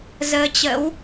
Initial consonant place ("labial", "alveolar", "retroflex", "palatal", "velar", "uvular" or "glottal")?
alveolar